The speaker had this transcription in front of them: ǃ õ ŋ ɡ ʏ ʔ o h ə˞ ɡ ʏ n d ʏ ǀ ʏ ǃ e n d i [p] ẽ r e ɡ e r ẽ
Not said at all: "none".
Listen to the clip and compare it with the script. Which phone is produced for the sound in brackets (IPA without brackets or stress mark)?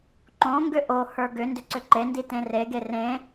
t